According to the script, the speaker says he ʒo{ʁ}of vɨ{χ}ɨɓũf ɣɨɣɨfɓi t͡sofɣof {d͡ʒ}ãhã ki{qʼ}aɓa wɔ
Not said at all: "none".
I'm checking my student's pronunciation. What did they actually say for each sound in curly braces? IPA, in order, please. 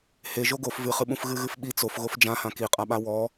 ɡ, χ, d͡ʒ, qʼ

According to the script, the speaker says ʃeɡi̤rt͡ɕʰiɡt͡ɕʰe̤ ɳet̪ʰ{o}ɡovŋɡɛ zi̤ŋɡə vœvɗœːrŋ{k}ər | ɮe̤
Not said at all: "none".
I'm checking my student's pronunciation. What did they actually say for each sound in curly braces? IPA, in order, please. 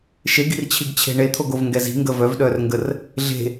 o, ɡ

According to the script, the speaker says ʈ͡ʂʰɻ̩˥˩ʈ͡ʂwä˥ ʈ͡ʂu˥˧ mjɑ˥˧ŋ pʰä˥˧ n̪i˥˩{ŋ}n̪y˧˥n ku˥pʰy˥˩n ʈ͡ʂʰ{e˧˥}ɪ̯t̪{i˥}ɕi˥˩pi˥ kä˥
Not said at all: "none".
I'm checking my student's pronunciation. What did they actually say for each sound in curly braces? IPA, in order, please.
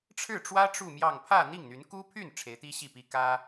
ŋ, e˧˥, i˥

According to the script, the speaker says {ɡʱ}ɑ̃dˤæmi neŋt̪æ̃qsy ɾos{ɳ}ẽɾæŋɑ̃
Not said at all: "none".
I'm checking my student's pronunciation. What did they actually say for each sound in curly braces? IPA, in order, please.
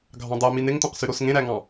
ɡʱ, ŋ

